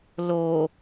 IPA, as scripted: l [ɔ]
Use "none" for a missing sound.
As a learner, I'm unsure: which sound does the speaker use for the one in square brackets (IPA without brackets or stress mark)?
o